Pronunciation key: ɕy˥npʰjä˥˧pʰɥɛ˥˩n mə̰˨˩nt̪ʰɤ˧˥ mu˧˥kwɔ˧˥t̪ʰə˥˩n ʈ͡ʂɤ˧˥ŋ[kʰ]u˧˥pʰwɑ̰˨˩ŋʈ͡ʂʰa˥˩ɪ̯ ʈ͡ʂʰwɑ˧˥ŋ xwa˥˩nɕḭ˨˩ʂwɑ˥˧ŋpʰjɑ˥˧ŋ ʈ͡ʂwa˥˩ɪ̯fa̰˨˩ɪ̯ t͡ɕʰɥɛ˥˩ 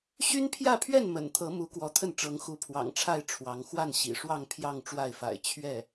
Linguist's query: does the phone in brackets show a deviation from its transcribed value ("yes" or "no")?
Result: yes